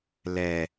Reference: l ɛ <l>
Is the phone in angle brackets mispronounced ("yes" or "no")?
yes